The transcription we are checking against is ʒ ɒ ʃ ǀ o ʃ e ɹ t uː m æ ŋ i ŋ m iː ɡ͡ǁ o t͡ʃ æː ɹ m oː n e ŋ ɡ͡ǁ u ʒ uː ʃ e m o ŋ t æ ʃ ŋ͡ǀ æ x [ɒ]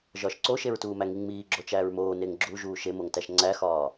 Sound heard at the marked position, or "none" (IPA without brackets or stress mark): ɒː